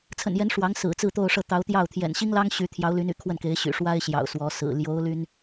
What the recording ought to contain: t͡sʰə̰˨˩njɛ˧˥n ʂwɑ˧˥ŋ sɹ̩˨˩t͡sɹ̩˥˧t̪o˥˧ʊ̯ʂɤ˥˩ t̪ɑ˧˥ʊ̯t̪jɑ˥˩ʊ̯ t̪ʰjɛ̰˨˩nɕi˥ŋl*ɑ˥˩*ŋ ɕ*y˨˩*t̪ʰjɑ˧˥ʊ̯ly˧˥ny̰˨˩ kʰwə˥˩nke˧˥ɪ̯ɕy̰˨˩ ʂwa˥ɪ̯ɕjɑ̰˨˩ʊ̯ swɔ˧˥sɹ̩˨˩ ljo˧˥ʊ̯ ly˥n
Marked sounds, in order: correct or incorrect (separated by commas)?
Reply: incorrect, incorrect